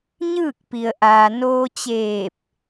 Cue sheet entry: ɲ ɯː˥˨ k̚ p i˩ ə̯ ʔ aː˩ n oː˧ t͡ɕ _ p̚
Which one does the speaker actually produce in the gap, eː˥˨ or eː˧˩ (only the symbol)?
eː˧˩